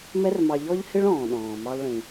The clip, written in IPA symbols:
m ɛ˥ r m ɑ˧ ʎ ɔ˥ ʎ h ɪ˥ ɭ ɔ̃ː˩ ɗ ɔ̃ː˩ m ɑ˧ lˠ ɭ ĩ˩

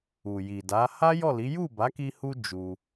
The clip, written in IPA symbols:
u˨ j i˨ d a˨˦ h a˦ j ɔ˦˨ l i˨˦ j u˦˨ b a˨˦ k i˧ h u˧ d͡ʒ u˧

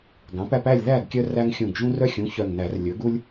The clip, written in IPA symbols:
ɡ ɑ̃˩˥ p æ˦ p æ˥˨ lʲ ð æ˥˨ ɡ kʲ œ˦ r æ˦ ŋ xʲ ũ˧˩ ɡ ʒ ũ˦ r œ˦ xʲ ũ˩˥ ç œ˧˩ ŋ n æ˨˩˦ r lʲ ɵ˩˥ ɡ u˦ lʲ

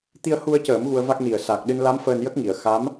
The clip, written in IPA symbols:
t̪ i˧ ə̯ h u˧ ə̯ c əː˨˩˦ m ɣ u˧ ə̯ v a˦˥ k̚ n i˨˩ ə̯ s a˨˩ k̚ ɗ ɨ˧ n l a˧˥ m f əː˧ n j ə˦˥ k̚ ŋ i˨˩˨ ə̯ x a˧˥ m

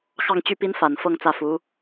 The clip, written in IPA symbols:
x ɑ˥˧ ŋ t͡ɕ y˥˩ p i˥ n f a˨˩ n f ɤ˥˧ ŋ t͡s ä˥˩ f u˧˥

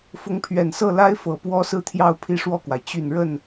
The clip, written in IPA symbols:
f ʊ˧˥ ŋ pʰ ɥ ɛ˨˩ n s ɤ˥˩ l a˥ ɪ̯ f ɤ˨˩ p w ɔ˥ s ɹ̩˥˧ t̪ʰ j ɑ˥˧ ʊ̯ pʰ i˥˧ ʂ w ɔ˥˩ k w a˩ ɪ̯ t͡ɕ y˨˩ n ɻ ə˥˩ n

